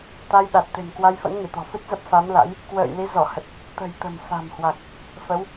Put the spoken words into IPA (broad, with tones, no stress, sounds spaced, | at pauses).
t̪ a˧ j ɗ a˨˩ t̚ t̪ e̤˨˩ n k w a˧ j f ə̰˧˥ n ŋ i˧˩ t̪ ɔ̤˨˩ f ɨ˦˥ t̚ z ə˦˥ p̚ f a˨˦ m l a̰˧˥ j | k w ə̰ː˧˨ j l i˨˦ z ɔ˧˩ h ə˨˩ t̚ | t̪ ə̤˨˩ j t̪ ə̤˨˩ m f a̤˨˩ m h w a˨˩ k̚ | f ə˨˦ w